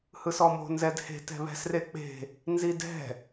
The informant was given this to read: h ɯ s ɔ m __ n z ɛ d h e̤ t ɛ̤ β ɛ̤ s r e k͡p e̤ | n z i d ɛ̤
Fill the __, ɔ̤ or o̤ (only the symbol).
o̤